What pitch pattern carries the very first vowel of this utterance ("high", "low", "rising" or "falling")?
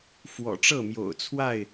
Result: low